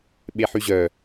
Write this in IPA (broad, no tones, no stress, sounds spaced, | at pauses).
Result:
ɓ e ħ y ʑ œ